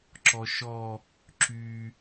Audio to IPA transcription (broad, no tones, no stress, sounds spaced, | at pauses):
ǁ ɔ ʃ ɔ | ǁ y